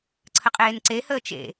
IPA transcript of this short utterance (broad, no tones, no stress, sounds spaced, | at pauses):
ǀʰ ə qʼ eː n ǀ e h əː t͡ʃ ḛ